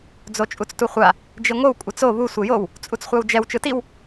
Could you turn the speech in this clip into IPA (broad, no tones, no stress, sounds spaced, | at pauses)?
d͡z o t͡ʃʼ u t͡s t u χʷ a | d͡ʒ i ŋʷ ɯ w kʷʼ ɛ t͡s o β u sʷ e j o w | t͡sʼ u t͡s χʷ a w d͡ʒ ɛ w t͡ʃ ɯ t i w